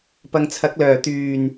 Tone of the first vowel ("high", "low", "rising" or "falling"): low